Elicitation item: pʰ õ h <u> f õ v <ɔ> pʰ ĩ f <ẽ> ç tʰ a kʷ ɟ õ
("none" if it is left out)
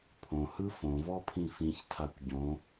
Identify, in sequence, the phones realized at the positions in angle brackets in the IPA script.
ɯ, ɔ, ĩ

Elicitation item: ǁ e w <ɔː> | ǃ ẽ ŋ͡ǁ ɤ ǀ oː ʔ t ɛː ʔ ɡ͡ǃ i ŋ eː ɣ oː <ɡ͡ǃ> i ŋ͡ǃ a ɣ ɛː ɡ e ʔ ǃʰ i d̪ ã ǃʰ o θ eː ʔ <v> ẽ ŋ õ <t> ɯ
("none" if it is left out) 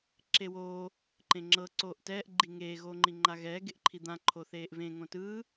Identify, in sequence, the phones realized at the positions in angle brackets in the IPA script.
oː, ŋ͡ǃ, v, t

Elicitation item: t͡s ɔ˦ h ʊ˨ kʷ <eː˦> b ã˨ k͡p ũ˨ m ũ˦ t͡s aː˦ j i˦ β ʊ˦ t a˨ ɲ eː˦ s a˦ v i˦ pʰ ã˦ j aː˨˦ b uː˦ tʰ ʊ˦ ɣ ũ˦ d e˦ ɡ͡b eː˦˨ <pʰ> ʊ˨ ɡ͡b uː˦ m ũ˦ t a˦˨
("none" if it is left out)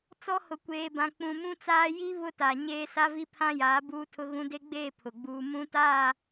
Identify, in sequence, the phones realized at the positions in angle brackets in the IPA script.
eː˨, pʰ

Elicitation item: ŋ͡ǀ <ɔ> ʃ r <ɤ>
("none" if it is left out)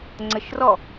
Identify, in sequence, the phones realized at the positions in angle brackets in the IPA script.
ə, ɔ

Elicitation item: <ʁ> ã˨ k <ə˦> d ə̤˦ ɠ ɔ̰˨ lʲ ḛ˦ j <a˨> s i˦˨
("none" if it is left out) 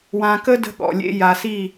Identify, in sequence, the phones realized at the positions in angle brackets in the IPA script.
w, ə˦, a˨

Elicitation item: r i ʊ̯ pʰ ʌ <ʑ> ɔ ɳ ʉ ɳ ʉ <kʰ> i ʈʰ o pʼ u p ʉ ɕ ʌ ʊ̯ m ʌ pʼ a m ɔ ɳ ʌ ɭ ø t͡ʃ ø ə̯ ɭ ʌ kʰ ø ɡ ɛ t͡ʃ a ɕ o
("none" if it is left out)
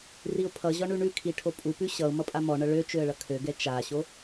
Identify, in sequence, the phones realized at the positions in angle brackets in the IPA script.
ʑ, kʰ

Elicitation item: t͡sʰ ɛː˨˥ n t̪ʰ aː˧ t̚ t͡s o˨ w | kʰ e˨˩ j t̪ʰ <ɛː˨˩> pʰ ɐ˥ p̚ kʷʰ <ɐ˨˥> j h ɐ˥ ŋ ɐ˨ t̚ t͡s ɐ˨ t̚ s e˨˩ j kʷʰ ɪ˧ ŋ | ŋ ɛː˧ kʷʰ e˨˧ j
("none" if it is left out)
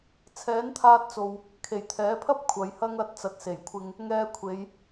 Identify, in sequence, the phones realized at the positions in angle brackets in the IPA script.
ɛː˨˥, ɐ˨˧

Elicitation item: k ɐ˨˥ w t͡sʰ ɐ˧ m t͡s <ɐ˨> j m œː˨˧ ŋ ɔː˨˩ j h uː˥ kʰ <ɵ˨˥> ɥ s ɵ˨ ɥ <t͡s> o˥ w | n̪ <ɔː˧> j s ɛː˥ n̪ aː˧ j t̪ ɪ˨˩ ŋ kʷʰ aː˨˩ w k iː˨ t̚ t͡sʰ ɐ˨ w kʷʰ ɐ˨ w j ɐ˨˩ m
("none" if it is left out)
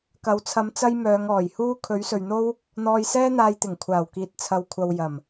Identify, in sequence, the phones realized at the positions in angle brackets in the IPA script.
ɐ˥, ɵ˨˥, n̪, ɔː˧

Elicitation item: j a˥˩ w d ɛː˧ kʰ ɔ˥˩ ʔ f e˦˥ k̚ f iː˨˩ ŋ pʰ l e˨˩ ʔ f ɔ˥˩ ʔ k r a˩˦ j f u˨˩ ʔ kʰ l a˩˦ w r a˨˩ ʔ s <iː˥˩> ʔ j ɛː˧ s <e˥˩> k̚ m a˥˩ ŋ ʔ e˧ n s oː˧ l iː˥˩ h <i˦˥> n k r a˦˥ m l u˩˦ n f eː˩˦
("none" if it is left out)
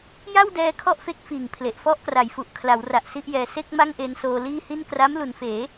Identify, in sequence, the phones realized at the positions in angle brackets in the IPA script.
i˥˩, e˥˩, i˥˩

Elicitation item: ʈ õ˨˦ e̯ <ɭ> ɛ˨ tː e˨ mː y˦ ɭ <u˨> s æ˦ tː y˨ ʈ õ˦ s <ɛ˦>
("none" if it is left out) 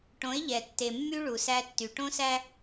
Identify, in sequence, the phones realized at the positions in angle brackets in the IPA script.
ʎ, u˨, æ˦

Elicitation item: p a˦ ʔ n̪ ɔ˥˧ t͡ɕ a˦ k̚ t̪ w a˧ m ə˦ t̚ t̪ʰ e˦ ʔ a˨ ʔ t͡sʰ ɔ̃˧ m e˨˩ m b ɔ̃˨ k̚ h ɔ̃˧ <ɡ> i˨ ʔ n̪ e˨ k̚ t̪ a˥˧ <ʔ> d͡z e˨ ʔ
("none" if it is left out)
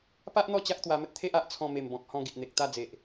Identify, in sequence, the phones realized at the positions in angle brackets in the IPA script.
ɡ, none

